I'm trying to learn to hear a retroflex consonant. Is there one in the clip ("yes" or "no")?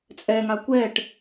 yes